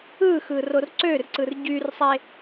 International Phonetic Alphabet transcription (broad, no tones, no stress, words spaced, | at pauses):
ɯxɯ rorǀørǀɯr ɟyrsˤe